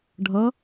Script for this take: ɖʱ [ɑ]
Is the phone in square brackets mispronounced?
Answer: yes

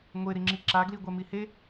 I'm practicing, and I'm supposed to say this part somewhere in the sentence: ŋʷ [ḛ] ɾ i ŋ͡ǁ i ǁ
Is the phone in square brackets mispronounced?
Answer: yes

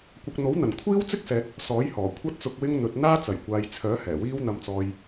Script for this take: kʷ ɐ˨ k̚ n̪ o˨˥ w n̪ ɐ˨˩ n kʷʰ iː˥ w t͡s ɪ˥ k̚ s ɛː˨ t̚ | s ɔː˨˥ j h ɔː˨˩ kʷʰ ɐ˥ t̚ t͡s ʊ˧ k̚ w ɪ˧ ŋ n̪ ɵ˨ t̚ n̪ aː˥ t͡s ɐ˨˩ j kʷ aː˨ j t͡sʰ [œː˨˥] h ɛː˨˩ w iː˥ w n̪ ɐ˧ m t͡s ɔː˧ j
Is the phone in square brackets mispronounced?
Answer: no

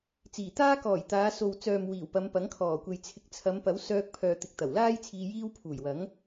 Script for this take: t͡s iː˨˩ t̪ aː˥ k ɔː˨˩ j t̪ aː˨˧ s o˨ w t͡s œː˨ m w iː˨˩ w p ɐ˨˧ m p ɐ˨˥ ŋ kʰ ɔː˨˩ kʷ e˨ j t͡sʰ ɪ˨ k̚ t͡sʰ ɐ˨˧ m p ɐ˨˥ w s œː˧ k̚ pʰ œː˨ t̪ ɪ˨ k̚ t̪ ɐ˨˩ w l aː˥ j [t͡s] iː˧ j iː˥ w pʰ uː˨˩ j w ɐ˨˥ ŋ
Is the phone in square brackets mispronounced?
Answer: yes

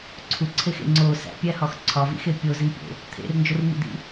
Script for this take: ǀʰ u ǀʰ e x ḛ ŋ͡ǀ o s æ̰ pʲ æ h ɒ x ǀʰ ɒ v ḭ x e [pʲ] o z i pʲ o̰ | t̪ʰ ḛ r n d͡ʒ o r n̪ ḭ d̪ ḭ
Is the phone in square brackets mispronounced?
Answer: no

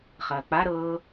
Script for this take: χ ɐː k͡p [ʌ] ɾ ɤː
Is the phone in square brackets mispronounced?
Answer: yes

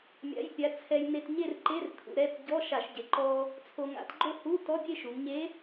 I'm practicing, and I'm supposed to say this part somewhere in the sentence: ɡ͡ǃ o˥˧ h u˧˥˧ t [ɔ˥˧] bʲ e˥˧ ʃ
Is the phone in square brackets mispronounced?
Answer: yes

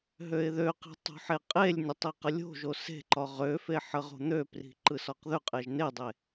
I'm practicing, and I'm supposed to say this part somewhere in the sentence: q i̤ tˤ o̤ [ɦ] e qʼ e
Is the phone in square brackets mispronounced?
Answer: yes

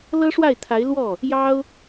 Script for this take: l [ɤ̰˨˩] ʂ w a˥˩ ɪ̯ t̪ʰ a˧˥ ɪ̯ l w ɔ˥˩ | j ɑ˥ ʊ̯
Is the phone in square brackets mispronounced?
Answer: yes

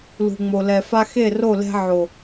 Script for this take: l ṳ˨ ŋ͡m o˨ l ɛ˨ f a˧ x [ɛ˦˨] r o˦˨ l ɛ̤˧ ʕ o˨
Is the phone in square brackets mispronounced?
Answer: yes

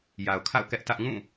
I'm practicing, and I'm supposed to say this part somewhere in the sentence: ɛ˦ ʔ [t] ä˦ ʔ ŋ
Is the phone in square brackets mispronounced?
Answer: no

